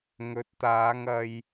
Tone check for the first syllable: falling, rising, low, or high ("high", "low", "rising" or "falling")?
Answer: rising